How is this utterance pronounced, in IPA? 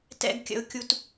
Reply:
t ɛ̰˧ ɡ kʲ ə̰˨ ʊ̯ kʲ u˨ t

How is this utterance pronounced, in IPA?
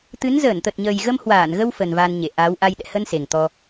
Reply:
t̪ ɨ˨˦ n z əː˧˩ n t̪ ə˨˩ t̚ ɲ əː˨˩ j ɣ ə˧ m h w aː˧˩ n ɣ ə˧ w f ə˨˩ n v a˧ n ɲ e˧˩ ʔ aː˨˦ w ʔ a˧ j ɗ ɛ̰˧˨ h ə˧ n s e˨˩ ŋ t̪ ɔ˧

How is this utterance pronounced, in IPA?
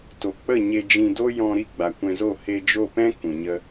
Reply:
t o˨ k͡p ə˦˨ ɲ e˧ d͡ʒ ĩ˧ d o˦ j ɔ̃˧ ɾ i˦˨ ɡ͡b a˨ kʷ ɛ̃˧ z o˦˨ h e˧ d͡ʒ o˦˨ p ɛ̃˦ k ũ˨ ɲ ə˦

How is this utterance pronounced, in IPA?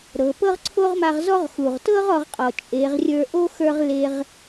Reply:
ɾ ɤ˩˧ p ɤ˥ ʁ ǀʰ o˥ ʁ m a˧ ʁ z ɔ˥ ʁ x u˩ ʁ t ɤ˥ ʁ ɔ˩˧ ʁ qʼ ɔ˩ t͡ʃʼ e˩˧ ʁ rʲ ə˞˧ ʔ o˥ x ə˞˧ ʁ l e˧ ʁ

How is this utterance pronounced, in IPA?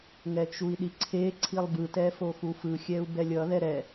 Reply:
ŋ ɛ t͡ʃ u i̯ ɗ i ǀʰ e ǀʰ i lˠ b ɯ t ɛ f o x u f ɯ xʲ ɛ u̯ b ɛ lʲ ʌ ð ɛ ɾ ɛ

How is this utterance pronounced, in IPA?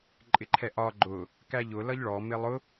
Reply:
ǃʼ ɪ ǃʰ ɛ ʔ ɒ ɡ͡ǃ ʊ | k æ ʎ ʊ l ʌ ʎ ɭ ɔ m ɪ lˠ ʊ

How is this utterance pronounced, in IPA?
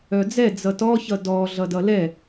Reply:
œ d͡z ɛ d͡z ʌ t ɔ ç ʌ d ɔ ɮ ʌ d ʌ l ɛ

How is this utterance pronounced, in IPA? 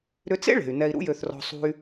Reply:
ɾ ʏ˥ t͡s ḛ˥ ɭ e̤˩ y̯ n ɛ˧ i̯ ɾ ṵ˥ j ø˧ θ r ɔ̤˧ sˤ ṳ˧ y̯

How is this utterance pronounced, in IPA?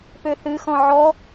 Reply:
p ø θ ɨ x ɔ̃ ʕ ɔ

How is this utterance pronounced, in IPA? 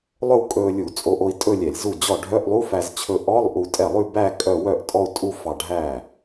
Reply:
lˠ ɵ˥˧ w kʼ ɵː˧ lʲ u˧˩˧ t͡sʼ o˧ ʔ o˧ i̯ tʼ ɵ˥˧ lʲ ɛ˧˩˧ lʲ z u˥˩ d͡ʑ ɔ˥˩ ɖʱ œ˧˥˧ ʔ lˠ u˧˥˧ f æ˧ z t͡ɕʰ ɵ˧ ʔ ɔ˧˥˧ lˠ ʔ u˧ tʼ ɛ˥˩ lˠ ʉ˥˧ b æ˥˧ kʼ œ˥˧ w œ˥˩ ʔ tʼ ɔ˥˧ u̯ tʼ u˥˧ f ɑ˧ ɖʱ æː˥˩

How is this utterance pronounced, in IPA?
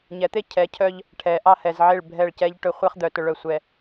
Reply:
ɲ ɛ˨˦ t̪ e˦ cʰ ɛ˨˦ cʰ œ˦ ʎ | ʈʰ ɛ˨ ʔ ɑ˦ h ɛ˨ z ʕ e˦˨ ɭ bʱ ɛ˦˨ ɭ c ɛ˦ ʎ ʈ ɵ˦ χʷ e˦ χ d̪ œ˨ t ɵ˦ ɭ œ˦ sʷ ɛ˨

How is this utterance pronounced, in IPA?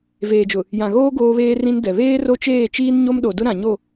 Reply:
v eː˨ d͡ʒ ʊ˨ | j ã˨ ɣ oː˦ ɡ oː˦ β eː˦ r ĩ˦ n d ɛ˨ β eː˦ r o˦ t͡ʃ eː˦˨ t͡ʃ iː˦ n ɲ o˦ m ɗ o˨ d ʊ˦ ɾ ã˨ ɲ o˦˨

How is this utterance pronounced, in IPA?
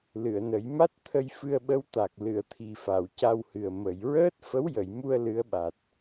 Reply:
l ɨ˨˩˨ ə̯ n ə˨˩˦ j m a˦˥ t̚ t̪ʰ ə˧ j f ɨ˧ ə̯ ɓ ə˧˥ w t̪ a˨˩ k̚ l ɨ˨˩˨ ə̯ t̪ʰ i˨˩ f a˨˩˨ w c a˧ w h ɨ˨˩ ə̯ m ə˨˩˨ j ɹ əː˦˥ t̚ f ə˧˥ w j ə˨˩˨ j m u˧ ə̯ l ɨ˧˥ ə̯ ɓ a˨˩ t̚

